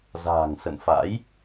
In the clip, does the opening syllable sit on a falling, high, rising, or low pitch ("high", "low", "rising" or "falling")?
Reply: low